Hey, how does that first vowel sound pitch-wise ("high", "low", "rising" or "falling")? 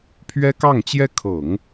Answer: high